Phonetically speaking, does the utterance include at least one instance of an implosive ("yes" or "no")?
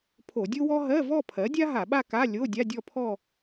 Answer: yes